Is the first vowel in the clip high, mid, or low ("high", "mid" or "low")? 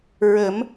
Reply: mid